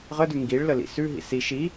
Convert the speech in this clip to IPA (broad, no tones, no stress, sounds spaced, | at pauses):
ʁ ə d ʉ ŋ ɡ i ɭ l ə l ḭ s ʉ ɦ ḭ s i ʃ i